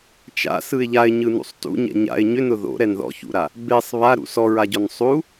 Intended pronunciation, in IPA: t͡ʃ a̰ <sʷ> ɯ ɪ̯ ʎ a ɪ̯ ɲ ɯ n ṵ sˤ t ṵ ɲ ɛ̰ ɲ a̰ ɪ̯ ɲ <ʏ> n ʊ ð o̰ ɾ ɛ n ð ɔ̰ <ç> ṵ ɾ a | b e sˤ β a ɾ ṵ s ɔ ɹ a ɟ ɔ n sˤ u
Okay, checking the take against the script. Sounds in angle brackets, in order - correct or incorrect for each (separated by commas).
incorrect, correct, correct